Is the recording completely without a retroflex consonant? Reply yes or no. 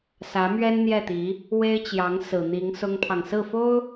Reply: yes